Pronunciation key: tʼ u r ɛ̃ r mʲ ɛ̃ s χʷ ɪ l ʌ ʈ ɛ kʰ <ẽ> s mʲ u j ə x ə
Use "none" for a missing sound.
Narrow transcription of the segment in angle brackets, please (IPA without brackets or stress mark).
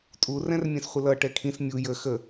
ĩ